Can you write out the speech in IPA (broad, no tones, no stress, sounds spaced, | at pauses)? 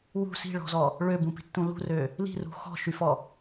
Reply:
w ṳ s i̤ ɭ ɔ̤ z ɔ | ɭ ø b ũ p i̤ tː ũ l ṳ r ø | l i̤ r ṳ x ɔ̤ ʃ y f ɔ